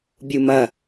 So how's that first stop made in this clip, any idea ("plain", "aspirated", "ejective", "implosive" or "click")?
plain